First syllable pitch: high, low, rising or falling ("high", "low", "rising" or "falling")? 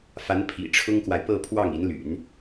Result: rising